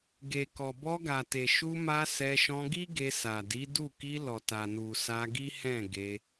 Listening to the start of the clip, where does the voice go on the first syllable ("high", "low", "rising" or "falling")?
low